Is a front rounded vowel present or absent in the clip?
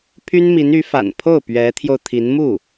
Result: present